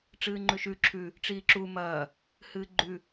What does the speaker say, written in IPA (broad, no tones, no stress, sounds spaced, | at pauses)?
ʈ͡ʂ ɨː ŋ͡ǃ ʉ ʃ ʉ ǁʰ ʉ | ʈ͡ʂ iː ǁ u m ɐː | h ɨː ɡ͡ǃ ʉ